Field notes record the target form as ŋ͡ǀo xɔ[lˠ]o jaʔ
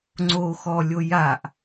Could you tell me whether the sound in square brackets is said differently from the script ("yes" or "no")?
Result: yes